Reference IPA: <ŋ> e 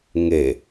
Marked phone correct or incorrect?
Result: correct